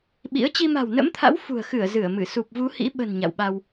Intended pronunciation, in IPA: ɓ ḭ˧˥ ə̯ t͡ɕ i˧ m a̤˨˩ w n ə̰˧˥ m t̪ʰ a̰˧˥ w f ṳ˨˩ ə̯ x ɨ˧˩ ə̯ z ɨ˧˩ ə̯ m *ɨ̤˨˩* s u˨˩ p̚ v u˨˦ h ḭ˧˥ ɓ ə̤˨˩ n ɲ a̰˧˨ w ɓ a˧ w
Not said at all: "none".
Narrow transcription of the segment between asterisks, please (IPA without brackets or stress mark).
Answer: ɨ˧˩